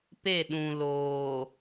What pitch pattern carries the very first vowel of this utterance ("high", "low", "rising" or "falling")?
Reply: falling